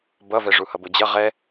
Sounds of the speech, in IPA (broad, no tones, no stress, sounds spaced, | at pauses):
b ʌ v ɛ ʐ u h ʌ b o d͡ʑ ʌ ʁ ɛ